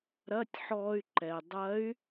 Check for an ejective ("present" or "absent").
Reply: absent